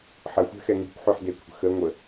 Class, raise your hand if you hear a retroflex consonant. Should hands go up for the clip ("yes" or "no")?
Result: no